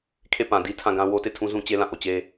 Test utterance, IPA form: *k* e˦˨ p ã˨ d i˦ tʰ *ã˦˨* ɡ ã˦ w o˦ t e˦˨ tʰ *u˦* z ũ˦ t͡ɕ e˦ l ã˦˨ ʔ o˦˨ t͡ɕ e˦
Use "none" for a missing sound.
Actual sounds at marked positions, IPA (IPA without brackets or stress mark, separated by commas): kʰ, ã˦˨, ũ˦